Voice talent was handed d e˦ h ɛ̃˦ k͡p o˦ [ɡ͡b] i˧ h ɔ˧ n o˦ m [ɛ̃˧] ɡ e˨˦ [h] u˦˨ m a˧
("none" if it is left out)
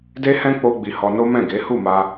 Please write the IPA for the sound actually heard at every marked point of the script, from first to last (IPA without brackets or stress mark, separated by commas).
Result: ɡ͡b, ɛ̃˦˨, h